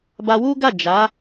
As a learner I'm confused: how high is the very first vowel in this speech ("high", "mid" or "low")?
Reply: low